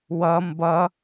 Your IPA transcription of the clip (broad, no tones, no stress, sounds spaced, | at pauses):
w ʌ m b ʌ